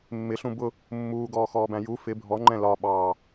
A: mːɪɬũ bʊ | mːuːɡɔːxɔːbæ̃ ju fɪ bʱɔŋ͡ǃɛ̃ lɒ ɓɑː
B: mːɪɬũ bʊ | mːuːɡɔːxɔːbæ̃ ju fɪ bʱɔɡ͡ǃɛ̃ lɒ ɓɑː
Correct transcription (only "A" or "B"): A